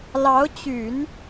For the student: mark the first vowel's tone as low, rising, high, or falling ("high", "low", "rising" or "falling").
rising